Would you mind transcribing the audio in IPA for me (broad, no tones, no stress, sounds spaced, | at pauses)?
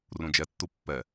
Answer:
r ũ d͡ʒ ɛ tː u pː ɛ